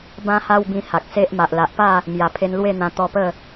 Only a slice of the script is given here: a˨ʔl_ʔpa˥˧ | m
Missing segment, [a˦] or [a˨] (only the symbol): a˨